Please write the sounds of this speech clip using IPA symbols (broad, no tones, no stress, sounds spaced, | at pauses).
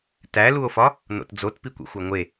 t æ l u o̯ f ɒ | n o̰ t d͡z o t p i kʷ ḭ xʷ æ ŋʷ e